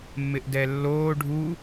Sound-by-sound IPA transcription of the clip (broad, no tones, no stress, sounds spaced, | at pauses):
mː ɪ ʔ d ɛ lː oː ɖʱ u